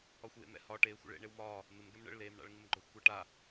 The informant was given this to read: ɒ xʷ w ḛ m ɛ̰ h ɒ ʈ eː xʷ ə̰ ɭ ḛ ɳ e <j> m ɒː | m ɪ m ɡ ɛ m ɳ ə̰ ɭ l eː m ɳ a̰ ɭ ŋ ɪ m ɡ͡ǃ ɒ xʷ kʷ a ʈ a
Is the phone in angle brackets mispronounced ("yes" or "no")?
yes